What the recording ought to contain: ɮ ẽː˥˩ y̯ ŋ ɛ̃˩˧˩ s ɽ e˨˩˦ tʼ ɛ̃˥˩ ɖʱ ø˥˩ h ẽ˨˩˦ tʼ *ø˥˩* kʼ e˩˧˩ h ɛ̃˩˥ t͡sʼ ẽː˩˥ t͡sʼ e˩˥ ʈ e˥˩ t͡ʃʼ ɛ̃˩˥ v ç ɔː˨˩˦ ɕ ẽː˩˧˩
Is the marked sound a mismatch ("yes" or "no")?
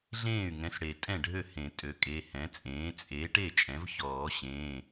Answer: yes